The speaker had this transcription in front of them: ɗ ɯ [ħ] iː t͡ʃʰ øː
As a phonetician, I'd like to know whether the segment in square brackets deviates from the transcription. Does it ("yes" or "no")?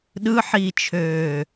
no